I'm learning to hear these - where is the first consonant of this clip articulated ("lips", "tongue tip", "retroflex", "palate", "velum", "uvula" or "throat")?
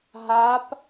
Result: throat